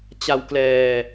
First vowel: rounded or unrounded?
unrounded